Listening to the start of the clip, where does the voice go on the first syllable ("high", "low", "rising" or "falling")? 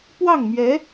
falling